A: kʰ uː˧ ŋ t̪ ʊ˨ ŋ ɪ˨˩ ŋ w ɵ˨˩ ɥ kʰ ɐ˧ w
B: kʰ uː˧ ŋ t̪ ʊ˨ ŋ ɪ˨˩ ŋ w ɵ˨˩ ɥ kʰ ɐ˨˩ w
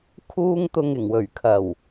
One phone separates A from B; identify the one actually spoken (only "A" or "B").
B